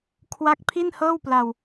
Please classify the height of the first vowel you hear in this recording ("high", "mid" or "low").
low